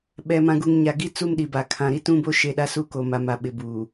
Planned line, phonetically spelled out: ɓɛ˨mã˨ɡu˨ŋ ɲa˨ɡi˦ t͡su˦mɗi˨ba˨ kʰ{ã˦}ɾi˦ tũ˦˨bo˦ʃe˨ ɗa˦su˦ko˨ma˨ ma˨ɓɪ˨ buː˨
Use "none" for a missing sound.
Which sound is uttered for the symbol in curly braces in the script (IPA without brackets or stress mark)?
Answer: ã˨